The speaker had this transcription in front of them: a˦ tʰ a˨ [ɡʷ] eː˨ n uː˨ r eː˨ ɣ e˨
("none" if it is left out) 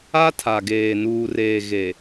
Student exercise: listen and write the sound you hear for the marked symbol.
ɡ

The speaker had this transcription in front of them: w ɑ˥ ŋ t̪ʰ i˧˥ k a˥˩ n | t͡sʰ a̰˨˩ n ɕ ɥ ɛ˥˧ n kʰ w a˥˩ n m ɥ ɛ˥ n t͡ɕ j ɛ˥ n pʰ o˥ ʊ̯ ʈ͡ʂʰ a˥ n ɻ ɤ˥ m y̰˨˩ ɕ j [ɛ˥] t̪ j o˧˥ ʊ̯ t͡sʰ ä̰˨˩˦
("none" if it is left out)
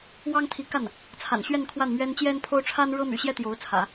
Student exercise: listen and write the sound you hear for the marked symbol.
ɛ˥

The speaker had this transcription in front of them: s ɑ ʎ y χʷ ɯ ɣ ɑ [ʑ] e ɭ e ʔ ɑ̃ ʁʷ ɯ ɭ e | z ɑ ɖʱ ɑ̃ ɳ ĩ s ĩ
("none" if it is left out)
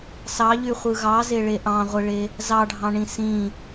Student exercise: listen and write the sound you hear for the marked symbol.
z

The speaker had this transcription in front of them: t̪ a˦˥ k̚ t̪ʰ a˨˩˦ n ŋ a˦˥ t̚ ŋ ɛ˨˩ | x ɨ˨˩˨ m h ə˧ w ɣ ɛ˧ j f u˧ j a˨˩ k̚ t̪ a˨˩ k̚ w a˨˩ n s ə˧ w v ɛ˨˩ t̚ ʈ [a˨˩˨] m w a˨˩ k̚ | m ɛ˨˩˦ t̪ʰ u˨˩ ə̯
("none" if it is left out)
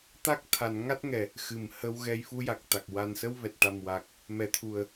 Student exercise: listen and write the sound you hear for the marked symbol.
a˨˩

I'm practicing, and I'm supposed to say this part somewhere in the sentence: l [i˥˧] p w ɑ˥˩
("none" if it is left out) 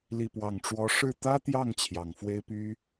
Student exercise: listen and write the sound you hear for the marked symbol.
i˥˧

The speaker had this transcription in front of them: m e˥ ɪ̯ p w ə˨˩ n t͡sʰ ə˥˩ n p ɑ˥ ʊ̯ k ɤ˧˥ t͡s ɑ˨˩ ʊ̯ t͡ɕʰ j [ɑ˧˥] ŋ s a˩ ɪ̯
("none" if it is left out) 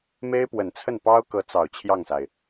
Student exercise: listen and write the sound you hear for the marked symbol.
ɑ˥˩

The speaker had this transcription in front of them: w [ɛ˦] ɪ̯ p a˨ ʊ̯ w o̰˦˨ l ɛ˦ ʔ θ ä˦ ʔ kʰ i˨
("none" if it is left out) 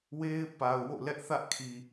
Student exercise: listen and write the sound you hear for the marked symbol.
e˦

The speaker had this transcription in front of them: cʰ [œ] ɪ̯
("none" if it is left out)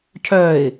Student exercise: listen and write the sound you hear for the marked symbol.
œ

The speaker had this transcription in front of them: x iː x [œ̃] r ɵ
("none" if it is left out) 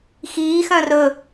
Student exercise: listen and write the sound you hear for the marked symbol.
œ̃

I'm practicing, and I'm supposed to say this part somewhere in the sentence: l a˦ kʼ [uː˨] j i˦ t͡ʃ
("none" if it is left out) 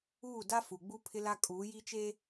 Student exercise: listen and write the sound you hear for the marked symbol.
uː˨˦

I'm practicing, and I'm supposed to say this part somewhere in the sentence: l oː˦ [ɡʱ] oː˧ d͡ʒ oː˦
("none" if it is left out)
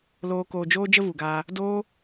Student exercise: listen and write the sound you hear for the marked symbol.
k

